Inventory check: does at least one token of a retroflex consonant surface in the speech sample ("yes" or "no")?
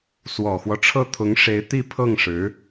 yes